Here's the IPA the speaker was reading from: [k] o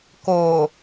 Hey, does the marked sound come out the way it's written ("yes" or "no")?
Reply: yes